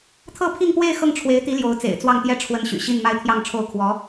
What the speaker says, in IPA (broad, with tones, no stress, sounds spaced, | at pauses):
t̪ʰ ɤ˥˧ pʰ i˥˧ ŋ p w e˥˧ ɪ̯ x ɤ˥˩ ŋ ʈ͡ʂʰ w e˧˥ ɪ̯ t̪ i˧˥ l j o˧˥ ʊ̯ t͡s ḛ˨˩ ɪ̯ t͡s w ɑ˥˩ ŋ t̪ j ɛ˥ ʈ͡ʂʰ w ə˧˥ n ɕ y̰˨˩ ɕ i˥˧ n m a˥˧ ɪ̯ t̪ʰ j ɑ˥˧ ŋ ʈ͡ʂʰ o˥˩ ʊ̯ kʰ w ɔ˧˥